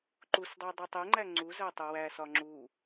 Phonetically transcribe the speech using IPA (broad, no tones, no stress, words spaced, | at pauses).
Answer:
ǃusdˤe dˤutˤeŋ͡ǃæ ŋ͡ǀu zætˤuwæsɒ ŋ͡ǁu